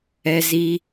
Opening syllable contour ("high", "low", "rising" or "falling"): high